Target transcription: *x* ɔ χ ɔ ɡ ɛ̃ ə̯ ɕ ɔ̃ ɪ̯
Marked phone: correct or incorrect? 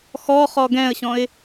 correct